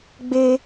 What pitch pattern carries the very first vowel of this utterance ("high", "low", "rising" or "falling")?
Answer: high